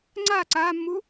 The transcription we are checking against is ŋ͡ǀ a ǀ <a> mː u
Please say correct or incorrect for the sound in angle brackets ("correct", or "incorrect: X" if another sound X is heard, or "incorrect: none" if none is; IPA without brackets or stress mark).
incorrect: aː